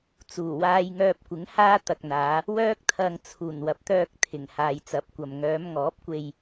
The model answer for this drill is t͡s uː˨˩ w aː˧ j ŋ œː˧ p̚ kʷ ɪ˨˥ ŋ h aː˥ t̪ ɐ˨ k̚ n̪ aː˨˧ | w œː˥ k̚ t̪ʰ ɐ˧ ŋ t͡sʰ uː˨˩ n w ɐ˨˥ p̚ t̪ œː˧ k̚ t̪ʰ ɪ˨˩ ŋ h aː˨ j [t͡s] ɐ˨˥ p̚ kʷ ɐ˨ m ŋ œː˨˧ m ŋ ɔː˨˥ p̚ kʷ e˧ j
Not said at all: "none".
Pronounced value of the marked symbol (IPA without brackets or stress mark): t͡s